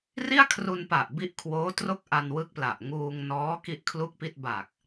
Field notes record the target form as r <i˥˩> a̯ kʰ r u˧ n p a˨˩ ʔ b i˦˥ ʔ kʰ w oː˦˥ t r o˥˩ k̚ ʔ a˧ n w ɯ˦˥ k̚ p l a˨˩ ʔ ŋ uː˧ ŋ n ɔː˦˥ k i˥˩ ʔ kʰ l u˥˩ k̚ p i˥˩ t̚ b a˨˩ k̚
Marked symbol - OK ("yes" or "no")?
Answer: yes